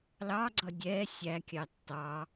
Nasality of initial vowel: oral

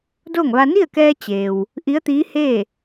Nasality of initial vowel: oral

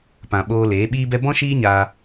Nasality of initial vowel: nasal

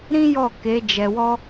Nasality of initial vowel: nasal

